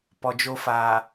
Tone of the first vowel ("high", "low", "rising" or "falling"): low